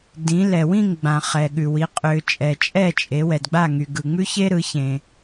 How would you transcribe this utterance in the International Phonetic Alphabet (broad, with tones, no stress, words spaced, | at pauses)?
dĩ˩˧lɛ˩ wĩ˥˨ŋɡ͡bã˩ χɛ˩ɠʉ˩wi˩˧ qʼʏː˩ t͡ʃʼɛ˩t͡ʃʼɛ˥˨ t͡ʃʼe˩˧ wɛ˩dɡ͡ba˥˨ŋy˩ ɡɯ˩ŋ͡mʉ˥çe˥ɾɯ˩˧ çẽ˩